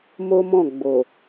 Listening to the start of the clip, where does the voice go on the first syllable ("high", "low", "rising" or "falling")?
high